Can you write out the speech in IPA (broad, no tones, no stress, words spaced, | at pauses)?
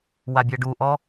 wabʲɜɖuʔɔ